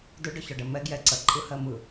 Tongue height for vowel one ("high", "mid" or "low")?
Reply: mid